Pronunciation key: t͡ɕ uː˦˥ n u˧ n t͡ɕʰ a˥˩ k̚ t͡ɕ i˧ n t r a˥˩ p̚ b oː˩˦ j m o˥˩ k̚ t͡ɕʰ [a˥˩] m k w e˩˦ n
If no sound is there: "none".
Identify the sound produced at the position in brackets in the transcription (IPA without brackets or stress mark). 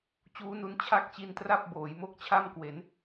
a˥˩